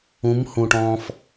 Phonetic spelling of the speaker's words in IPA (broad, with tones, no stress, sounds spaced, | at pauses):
ũ˨˦ m h ũ˨ ʈ ɔ̃ː˧ f